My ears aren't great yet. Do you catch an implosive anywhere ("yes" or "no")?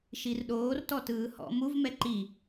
yes